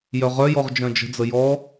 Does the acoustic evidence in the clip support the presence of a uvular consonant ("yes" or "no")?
yes